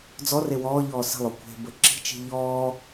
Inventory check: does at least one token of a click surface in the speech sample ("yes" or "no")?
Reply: yes